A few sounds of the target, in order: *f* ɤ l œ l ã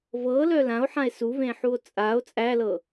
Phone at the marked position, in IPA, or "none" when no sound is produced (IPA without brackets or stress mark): v